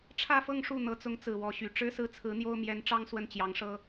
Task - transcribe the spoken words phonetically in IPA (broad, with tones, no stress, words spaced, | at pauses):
ʈ͡ʂʰä˥˧fɤ˥˧ŋ ʂu˥˩ n̪ɤ˧˥t͡sʊ˧˥ŋt͡sɹ̩˨˩ wɔ˧˥ɕy˧˥ ʈ͡ʂɻ̩˥sɹ̩˥˩t͡sʰɹ̩˧˥n̪jo˥ʊ̯ mjɛ˧˥nʈ͡ʂɑ˥ŋ swə˥˩nt͡ɕjɑ˧˥ŋʂɤ˥